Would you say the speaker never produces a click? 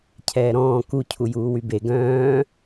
yes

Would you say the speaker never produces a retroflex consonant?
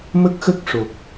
no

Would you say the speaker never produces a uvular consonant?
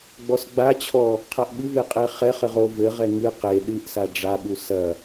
no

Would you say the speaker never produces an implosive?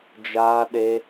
no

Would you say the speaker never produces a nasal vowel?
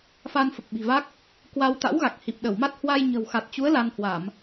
yes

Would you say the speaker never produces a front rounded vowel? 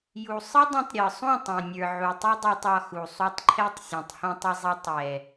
yes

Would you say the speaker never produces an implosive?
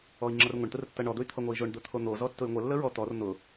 yes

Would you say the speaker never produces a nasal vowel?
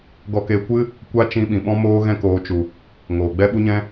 no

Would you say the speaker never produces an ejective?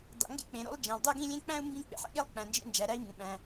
yes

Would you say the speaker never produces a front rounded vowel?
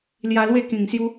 yes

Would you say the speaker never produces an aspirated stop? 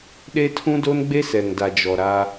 no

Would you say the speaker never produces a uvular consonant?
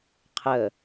no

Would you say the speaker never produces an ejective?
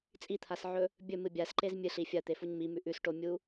no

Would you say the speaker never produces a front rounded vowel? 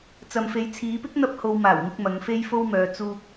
no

